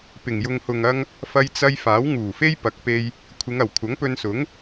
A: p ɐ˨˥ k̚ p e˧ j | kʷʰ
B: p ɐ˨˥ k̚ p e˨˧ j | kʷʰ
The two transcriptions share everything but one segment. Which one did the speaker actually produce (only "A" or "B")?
A